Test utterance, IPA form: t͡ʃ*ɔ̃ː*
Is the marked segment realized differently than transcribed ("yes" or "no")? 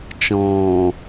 no